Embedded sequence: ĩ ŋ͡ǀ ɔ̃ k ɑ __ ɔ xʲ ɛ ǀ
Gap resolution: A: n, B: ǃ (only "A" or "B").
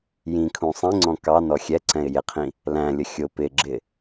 A